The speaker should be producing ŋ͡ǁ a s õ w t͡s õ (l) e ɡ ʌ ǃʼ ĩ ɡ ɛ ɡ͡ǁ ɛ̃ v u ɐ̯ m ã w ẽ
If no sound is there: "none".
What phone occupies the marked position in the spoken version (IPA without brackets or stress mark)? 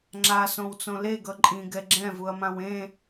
l